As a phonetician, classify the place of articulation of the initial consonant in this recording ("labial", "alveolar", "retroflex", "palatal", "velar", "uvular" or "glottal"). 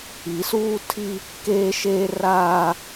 alveolar